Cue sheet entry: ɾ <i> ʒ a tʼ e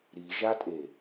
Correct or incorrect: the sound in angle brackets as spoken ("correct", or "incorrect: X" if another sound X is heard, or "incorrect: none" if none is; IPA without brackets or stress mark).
correct